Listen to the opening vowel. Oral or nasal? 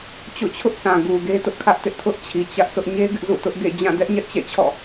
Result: oral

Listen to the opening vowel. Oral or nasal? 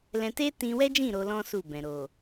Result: nasal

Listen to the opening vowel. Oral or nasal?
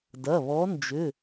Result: oral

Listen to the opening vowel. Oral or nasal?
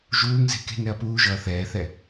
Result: oral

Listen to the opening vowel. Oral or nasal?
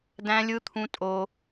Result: nasal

